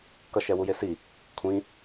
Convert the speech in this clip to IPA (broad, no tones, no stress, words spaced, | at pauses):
kʌʃɛ wujesi | kʷʰĩ